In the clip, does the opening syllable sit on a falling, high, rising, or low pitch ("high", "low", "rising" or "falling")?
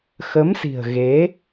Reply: rising